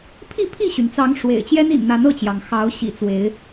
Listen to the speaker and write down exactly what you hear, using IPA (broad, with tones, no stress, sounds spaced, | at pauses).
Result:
pʰ i˥˨ pʰ i˥˨ ɕ y˩ n t͡s ɑ˨˦ ŋ ʂ w ḛ˨˩ ɪ̯ t͡ɕ j ɛ˦ n ḭ˨˩ n n̪ a˨˦ n ɤ˥˨ t͡ɕ j ɑ˩ ŋ x ɑ˨˦ ʊ̯ ɕ ḭ˨˩ t͡s w e˨˦ ɪ̯